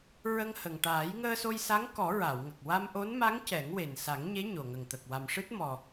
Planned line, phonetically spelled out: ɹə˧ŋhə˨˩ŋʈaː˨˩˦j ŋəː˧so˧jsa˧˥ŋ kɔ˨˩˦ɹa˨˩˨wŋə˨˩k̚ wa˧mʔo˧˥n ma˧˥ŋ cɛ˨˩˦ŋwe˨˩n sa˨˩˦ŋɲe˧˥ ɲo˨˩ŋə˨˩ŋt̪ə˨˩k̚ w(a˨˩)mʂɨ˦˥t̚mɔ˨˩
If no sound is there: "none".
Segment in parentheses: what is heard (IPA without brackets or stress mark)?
a˨˩